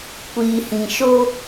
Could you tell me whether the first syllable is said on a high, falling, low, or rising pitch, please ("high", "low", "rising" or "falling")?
low